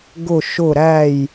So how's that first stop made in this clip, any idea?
plain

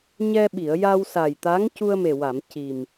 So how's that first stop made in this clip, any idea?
implosive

